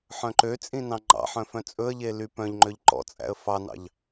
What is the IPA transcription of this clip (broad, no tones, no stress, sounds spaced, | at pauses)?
ħ œ̃ ǃ ø t͡sʼ ĩ n ɑ̃ ŋ͡ǃ ɑ̰ ħ œ̃ f œ̃ t͡sʼ ɵ ə̯ ʎ e l y p œ̃ ʎ ŋ͡ǃ ø ʎ ǃ ɔ̰ t͡sʼ æ̰ ə̯ f ɑ n ɑ̰ ʎ